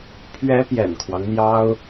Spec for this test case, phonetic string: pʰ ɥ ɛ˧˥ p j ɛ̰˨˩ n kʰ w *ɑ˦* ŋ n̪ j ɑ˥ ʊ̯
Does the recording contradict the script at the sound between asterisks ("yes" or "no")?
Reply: no